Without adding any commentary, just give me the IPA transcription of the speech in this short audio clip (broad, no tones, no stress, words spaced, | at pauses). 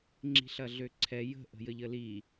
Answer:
ŋ͡ǁi̤ɬɐɮøǀʰɛ jə̤ ʔə̤jəʎəli